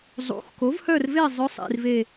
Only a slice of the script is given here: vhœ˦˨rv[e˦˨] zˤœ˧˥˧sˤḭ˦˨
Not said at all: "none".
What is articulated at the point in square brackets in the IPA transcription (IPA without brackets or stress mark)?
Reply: e˦˨